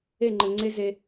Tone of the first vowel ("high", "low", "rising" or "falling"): falling